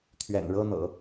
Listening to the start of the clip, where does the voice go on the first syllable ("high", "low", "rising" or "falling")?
low